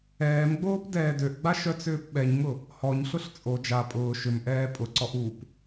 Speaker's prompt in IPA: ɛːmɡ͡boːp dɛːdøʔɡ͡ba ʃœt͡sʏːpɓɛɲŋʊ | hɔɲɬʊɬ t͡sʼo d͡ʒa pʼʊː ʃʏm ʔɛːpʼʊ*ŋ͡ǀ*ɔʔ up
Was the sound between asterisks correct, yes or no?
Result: no